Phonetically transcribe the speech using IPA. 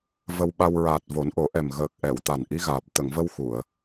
v ə˧ w ɓ a˧ w ɹ aː˨˩ t̚ v o˨˩˦ n ʔ o˨˩˦ ʔ ɛ˨˩ m ɣ əː˨˩ k̚ ʔ ɛ˨˩˨ w t̪ a˨˩ n ʔ i˧˥ ɣ aː˨˩ p̚ t̪ ə˨˩˨ ŋ v ə˧ w x u˨˩˨ ə̯

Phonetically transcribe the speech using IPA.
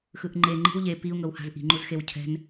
x ɯ ʔ ŋ͡ǃ e ŋ͡ǃ i̤ w ʎ e p i u̯ ŋ ɤ w h a̤ z ʔ i̤ ŋ͡ǃ u z x e w cʰ ɛ̤ n

